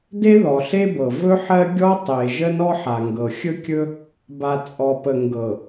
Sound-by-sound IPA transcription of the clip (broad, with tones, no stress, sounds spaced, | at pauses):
d e˦ ð ɔ˨ ɬ e˦ b ɤ˨ v ɵ˦ ħ ɜ˦ ɡʲ ɔ˦ tˤ e˨ ʒ ə˦ n ɔ˦ ħ a˨ ŋ ɡ ɤ˨ xʲ ɵ˦ kʲ ɵ˦ | b a˨ t͡sʼ ɔ˨ p ə˨ ŋ ɡ ɤ˨